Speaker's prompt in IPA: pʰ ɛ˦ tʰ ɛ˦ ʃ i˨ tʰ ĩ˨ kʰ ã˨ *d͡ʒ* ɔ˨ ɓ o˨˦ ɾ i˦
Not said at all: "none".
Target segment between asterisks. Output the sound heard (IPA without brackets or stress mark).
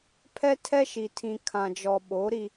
d͡ʒ